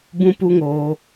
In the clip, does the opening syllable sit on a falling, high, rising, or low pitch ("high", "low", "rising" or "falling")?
high